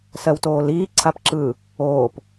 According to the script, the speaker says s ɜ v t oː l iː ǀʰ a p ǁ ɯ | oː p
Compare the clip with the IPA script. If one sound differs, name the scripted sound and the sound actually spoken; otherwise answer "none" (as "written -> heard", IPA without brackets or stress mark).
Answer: v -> w